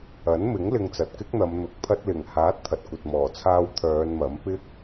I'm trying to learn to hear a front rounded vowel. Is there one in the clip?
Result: yes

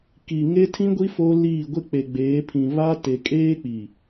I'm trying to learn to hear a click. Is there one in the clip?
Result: no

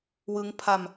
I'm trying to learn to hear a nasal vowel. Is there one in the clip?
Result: no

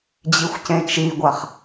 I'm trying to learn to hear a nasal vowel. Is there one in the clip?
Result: yes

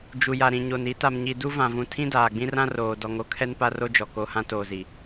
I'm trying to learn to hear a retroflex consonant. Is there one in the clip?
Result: no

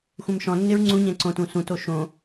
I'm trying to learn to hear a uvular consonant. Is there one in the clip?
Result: no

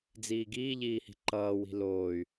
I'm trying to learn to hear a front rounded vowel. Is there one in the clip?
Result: yes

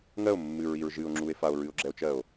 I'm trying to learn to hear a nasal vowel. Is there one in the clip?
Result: no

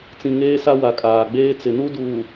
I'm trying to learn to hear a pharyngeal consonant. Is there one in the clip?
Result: no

